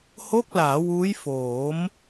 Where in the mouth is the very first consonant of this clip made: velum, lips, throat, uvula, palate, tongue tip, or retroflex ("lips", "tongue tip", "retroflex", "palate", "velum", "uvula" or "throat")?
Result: throat